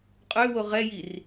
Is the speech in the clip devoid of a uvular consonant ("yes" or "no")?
no